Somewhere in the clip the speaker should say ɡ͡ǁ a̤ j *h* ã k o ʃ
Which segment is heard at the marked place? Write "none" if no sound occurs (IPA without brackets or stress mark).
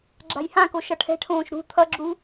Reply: h